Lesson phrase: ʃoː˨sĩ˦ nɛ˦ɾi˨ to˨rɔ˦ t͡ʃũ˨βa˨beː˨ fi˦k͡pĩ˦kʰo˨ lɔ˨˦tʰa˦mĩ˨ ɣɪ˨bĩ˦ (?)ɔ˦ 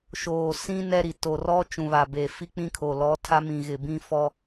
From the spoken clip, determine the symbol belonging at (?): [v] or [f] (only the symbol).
f